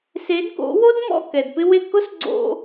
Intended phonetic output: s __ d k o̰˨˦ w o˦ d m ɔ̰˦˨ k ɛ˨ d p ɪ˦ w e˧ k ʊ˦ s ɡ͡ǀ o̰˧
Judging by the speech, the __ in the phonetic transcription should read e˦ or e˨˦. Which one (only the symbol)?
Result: e˨˦